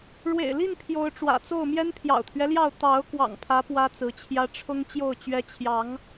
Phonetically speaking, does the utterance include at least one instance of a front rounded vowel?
no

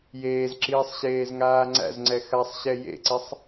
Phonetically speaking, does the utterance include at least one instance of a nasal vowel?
no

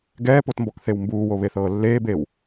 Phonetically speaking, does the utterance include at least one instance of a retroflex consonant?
no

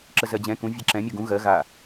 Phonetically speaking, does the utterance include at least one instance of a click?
yes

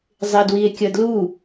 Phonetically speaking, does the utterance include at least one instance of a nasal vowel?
no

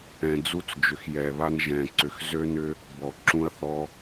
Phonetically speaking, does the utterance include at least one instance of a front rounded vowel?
yes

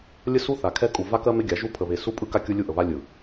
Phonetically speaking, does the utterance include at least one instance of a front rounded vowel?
no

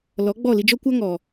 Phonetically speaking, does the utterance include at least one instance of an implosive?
no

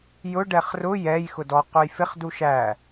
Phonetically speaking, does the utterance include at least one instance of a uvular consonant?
yes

